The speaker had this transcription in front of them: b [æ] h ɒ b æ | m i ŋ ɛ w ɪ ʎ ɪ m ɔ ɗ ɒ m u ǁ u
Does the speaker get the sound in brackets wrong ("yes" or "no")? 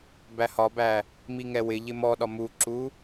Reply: no